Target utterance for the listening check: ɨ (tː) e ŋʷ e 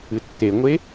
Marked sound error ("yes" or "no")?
no